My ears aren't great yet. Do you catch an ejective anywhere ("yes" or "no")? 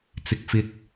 no